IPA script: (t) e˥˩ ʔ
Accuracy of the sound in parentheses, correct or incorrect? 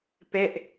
incorrect